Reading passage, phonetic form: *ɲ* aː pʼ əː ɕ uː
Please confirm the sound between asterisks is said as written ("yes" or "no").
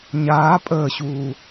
yes